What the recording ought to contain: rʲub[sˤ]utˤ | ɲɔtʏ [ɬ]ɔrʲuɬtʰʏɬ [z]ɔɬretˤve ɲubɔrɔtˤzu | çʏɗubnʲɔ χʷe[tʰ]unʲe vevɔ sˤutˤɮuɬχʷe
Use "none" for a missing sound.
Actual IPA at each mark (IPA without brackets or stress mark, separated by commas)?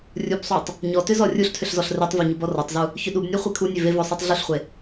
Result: sˤ, z, z, kʰ